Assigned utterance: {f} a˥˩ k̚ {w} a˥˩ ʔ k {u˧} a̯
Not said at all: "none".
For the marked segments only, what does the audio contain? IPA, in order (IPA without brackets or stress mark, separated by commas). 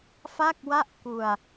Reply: f, w, u˧